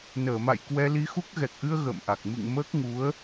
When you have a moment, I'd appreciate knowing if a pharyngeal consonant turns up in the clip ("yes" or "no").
no